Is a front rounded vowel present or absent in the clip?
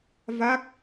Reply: absent